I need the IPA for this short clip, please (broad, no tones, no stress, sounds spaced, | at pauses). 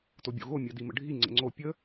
t o bʲ o̰ ɣ o mʲ ɜ d i m ə̰ ɖʱ i ŋ͡ǀ ə̰ ŋ͡ǀ o pʲ ə